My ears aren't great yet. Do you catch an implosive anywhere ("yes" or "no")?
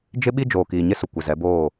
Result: yes